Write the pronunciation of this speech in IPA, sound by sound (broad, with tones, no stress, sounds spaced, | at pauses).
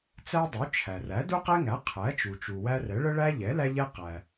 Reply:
t͡s æ˦ dˤ u˩˥ t͡ʃʰ æ˩ r æ˩˥ d u˦ q ɛ˦ ŋ æ˩˥ qʰ æ˩˥ t͡ʃ u˩ t͡ʃ u˩ w æ˦ r ɛ˩˥ ɭ ə˦ ɭ æ˦ ʎ ɛ˩˥ l æ˦ ʎ ɛ˦ q æ˩